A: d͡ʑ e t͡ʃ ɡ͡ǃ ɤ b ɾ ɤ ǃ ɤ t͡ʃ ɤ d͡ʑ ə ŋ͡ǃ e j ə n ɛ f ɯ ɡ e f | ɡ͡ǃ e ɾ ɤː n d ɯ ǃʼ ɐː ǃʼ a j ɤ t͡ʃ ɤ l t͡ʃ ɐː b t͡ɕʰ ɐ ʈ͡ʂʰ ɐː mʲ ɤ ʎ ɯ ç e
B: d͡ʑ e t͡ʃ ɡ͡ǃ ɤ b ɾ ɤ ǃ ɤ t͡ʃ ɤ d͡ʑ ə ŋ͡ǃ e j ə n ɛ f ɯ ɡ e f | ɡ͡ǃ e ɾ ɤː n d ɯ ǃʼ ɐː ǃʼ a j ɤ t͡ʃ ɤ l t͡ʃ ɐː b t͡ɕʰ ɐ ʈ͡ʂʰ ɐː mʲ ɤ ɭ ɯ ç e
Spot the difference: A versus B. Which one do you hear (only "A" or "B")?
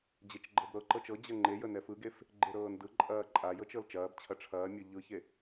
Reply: A